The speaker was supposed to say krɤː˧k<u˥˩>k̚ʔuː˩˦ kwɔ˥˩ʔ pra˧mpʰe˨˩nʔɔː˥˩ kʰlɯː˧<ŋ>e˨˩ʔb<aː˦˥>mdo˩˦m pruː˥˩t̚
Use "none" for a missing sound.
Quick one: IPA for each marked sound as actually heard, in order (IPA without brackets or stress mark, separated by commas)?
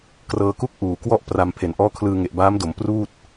u˥˩, ŋ, aː˦˥